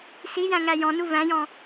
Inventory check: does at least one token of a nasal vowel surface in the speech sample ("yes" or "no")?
yes